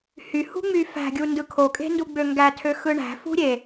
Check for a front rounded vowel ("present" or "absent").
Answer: present